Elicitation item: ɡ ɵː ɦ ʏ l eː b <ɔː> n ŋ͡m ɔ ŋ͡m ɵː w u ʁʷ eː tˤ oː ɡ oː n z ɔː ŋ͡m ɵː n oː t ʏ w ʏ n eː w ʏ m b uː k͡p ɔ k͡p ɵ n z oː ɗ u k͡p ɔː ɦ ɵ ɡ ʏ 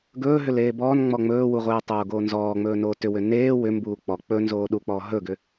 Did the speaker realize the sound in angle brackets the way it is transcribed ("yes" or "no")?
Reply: yes